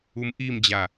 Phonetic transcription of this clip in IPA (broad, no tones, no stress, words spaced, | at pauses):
umʔimd͡ʑa